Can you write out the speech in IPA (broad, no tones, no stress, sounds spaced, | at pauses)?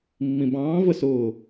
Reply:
mː ĩ b ɑ̃ː v ə s ʊː